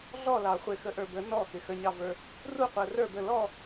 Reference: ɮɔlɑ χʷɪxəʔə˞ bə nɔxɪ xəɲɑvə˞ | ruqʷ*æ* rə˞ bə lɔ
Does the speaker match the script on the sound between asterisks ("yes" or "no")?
no